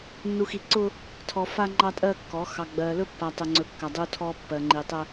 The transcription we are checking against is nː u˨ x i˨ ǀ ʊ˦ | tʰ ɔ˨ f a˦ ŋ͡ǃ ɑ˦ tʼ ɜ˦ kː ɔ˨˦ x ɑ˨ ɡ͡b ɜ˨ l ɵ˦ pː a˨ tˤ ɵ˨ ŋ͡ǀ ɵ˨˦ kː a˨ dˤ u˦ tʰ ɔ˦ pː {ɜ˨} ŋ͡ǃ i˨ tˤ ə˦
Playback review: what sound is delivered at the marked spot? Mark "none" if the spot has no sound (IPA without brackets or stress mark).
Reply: ɜ˨